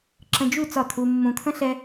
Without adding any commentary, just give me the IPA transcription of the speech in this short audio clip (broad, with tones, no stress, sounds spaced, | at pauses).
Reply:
ǁ ə̃˧ d͡ʒ u˦˨ t͡s ɒ˦˨ t̪ʰ u˧ mː ũ˨ t̪ʰ ə̃˦ ɬ ɛ˦